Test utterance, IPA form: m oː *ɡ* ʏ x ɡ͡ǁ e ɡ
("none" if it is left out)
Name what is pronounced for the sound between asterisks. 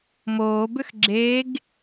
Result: b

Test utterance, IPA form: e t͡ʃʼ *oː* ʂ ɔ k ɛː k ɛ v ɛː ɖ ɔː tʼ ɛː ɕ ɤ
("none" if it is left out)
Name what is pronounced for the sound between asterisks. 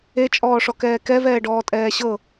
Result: ɔː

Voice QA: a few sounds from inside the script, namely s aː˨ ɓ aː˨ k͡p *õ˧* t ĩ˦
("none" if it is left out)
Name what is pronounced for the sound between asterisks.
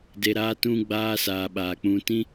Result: ũ˧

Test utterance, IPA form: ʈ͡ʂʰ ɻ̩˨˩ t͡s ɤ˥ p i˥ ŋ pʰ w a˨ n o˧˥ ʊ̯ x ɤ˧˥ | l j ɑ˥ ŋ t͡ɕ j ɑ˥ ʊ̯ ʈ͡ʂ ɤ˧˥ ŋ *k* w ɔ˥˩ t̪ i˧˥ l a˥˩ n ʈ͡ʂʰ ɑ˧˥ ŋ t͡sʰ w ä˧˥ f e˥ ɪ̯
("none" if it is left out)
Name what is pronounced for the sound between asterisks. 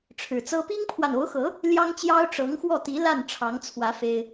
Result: x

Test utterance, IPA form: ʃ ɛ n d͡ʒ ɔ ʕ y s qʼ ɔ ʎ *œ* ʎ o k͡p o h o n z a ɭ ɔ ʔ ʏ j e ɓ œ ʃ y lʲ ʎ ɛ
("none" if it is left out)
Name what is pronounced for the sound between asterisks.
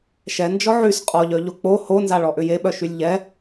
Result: œ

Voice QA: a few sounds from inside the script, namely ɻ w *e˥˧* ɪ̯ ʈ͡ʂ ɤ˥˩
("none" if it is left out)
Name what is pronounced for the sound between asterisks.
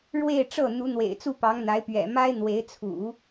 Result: e˥˧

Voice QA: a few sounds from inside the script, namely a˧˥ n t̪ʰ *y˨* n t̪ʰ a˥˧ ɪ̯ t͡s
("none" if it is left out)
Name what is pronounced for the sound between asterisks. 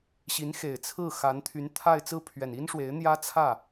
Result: y˧˥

